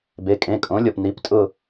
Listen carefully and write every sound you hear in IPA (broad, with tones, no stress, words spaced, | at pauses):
be˩˧˩kʼẽ˩˧˩kʼõ˩˥lʲɔ˩p ni˩˥ptʼʊ˥˨